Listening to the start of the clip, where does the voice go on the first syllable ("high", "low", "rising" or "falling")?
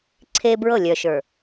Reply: high